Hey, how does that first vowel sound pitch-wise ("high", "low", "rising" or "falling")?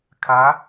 rising